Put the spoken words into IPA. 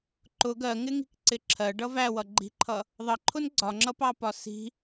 ǃ ʊ ɡ ɜ ŋ ɪ ŋ i̤ k ǀ ɪ ǁʰ ɜ ɖ ʌ v æ w ʌ ɡ͡ǃ i̤ ǃʰ ʌ | ðˤ ʌ ǃʰ ʊ n ɡ͡ǀ ɒ ŋ͡ǁ ʌ p ɑ p ɒ s i̤

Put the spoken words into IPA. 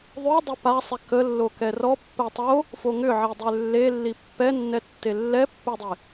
ðˤ ø dˤ œ p a sˤ ɛ k ə lː o k ɛ r ɔ pː ɛ tˤ o | f o ŋ ʏ ʕ i dˤ ø lː e lː i pː ɛ nː ɛ tː e lː ɛ pː ʏ dˤ e

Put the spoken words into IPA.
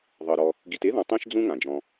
ðˤ ɤ˩ ɾ ɔ˨ | ɡ i˨ t e˥ ð ɔ̃˨ tˤ ĩ˥ ʃ d͡z ũ˥ ŋ ã˩ d͡ʒ ɔ̃˨

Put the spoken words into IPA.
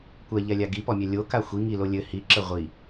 kʷ ɛ ʎ ɛ lʲ a ɡ i p ɔ mʲ ɛ lʲ o k a xʷ i ŋ i l o lʲ ɘ h i ǁ ɘ ʁʷ i

